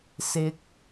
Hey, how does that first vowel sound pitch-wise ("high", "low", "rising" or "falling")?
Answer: high